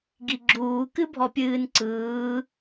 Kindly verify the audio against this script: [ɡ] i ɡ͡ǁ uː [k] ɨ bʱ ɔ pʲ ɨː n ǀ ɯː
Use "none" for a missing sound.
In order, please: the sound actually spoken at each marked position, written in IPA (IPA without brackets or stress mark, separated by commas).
ɡ, k